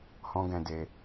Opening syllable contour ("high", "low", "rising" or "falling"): high